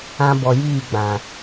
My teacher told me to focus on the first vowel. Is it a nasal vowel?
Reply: yes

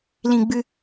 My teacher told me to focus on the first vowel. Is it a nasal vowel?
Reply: yes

